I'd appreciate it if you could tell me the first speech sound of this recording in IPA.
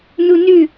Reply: n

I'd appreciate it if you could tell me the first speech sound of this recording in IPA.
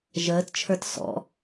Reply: ʒ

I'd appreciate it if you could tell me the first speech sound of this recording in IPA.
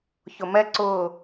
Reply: ç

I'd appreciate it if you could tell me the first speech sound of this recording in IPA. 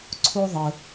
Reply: ǀʰ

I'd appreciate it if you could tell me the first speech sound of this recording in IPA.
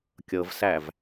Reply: kʲ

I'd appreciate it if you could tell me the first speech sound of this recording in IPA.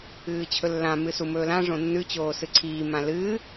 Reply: ɨː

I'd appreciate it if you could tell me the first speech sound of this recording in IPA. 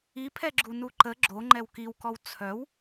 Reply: i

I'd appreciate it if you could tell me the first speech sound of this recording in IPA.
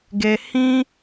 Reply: ɡ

